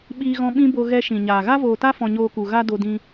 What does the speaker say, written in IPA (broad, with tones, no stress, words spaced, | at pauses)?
ɓiː˦ɣɔ̃˦ ɓĩ˦bo˧ ɣɛ˧ʃĩ˨ɲaː˨ ɣa˦voː˨ta˦fɔ̃˨ ɲoː˧ku˨ ɣa˦do˧ dĩ˧